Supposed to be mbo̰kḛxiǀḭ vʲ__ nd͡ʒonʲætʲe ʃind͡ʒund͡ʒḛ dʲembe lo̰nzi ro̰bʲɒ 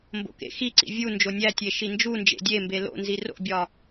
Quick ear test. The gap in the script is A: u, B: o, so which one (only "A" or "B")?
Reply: A